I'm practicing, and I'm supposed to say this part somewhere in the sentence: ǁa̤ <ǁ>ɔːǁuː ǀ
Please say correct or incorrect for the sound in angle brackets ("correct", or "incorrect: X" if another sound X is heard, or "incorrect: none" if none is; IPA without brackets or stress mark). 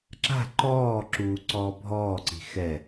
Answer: incorrect: ǃ